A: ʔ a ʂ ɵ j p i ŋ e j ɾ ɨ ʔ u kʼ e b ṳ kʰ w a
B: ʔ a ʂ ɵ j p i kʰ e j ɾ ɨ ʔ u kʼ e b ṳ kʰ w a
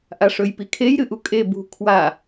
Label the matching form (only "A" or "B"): B